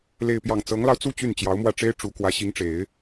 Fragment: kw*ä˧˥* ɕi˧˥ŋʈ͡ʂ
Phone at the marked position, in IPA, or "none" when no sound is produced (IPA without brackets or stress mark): ä˧˥